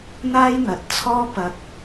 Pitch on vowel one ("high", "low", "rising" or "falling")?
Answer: high